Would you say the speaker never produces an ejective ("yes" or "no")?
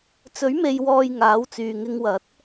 yes